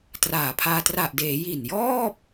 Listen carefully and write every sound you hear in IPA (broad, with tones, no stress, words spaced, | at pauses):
traː˨˩pʰaː˧ tra˨˩ʔdeː˩˦ ji˨˩njɔː˥˩p̚